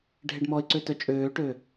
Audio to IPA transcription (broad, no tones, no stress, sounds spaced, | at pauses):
ɖʱ e ɖ m ɔ ɪ̯ ǀ ø t œ t͡ʃʼ øː ʈ ø